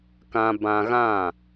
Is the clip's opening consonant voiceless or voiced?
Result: voiceless